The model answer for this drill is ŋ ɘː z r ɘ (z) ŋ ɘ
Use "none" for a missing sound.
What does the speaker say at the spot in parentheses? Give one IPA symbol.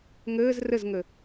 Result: z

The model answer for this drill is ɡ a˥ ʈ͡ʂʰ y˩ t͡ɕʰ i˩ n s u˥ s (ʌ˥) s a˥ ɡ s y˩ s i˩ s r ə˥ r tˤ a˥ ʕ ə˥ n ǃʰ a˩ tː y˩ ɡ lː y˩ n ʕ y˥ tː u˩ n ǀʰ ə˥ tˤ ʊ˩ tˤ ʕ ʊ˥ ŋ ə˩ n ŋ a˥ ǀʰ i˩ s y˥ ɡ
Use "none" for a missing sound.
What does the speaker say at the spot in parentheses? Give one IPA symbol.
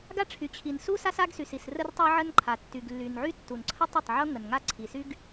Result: a˥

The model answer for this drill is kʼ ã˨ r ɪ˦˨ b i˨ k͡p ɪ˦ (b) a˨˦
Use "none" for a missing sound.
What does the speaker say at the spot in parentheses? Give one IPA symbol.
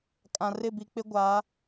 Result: ɡʷ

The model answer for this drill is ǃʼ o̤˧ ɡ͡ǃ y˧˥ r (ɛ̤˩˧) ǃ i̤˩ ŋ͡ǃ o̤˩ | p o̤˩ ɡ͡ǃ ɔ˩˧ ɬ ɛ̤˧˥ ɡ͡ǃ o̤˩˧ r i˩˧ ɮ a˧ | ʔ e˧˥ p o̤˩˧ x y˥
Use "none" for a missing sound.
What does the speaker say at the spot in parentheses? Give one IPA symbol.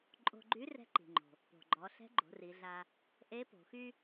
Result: ɛ̤˧˥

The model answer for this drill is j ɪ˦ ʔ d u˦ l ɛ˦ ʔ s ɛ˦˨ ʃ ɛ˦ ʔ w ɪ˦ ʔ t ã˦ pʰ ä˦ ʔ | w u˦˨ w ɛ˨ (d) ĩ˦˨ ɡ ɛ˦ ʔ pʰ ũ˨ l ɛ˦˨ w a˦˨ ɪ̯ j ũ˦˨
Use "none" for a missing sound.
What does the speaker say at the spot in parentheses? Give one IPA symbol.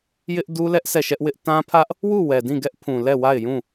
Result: d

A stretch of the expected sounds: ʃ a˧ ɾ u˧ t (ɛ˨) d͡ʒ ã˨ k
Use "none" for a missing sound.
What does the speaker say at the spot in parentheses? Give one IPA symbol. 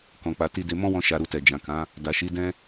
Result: ɛ˨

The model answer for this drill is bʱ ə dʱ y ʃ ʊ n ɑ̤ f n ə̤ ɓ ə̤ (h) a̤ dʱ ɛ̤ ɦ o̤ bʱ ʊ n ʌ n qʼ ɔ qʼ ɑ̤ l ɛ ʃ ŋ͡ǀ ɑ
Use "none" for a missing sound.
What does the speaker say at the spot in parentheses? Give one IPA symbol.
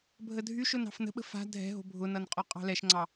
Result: f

